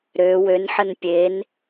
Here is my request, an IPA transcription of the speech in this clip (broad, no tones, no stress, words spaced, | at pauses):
ɾø wønħən pʲen